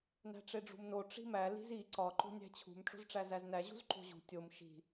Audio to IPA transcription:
n æ̤ ʈ͡ʂ e ɖ͡ʐ ṳ m n o ʈ͡ʂ i̤ m æ l i̤ z i ǀ ɒ ǃ o̤ nʲ æ̤ t͡ɕʰ ṳ m ʈ͡ʂ o̤ z ʈ͡ʂ æ z æ z n æ ʑ ṳ z ǃ o̤ ʑ ṳ tʲ o m ʃ i̤

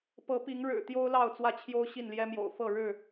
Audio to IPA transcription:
p ɤ˨˦ p i˨˦ ŋ ɻ ɻ̩˨˩ t̪ j o˦ ʊ̯ l ɑ˥˨ ʊ̯ t͡s w ä˥˨ t͡ɕʰ j o˦ ʊ̯ ɕ i˥˨ n l j ɛ˦ m j o̰˨˩ ʊ̯ f ɤ˥˨ ɻ ɻ̩˥˨

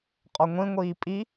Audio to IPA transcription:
qʼ ɔ ŋʷ ĩ ŋʷ iː pʼ i

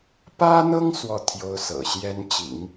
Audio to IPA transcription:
p ä˥ n̪ ɤ˥ ŋ s w ɔ˥˩ t̪ʰ j o˥ ʊ̯ s ɤ̰˨˩ ɕ j ɛ˥ n t͡ɕ ḭ˨˩˦ ŋ

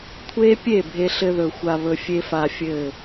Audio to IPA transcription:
kʷʰ e˦ pʲ e˦˨ bʱ e˧ ɬ ɘ˧ ð ɵ˨ xʷ a˧ β ɵ˧ fʲ e˦ f a˦ fʲ ɘ˦˨

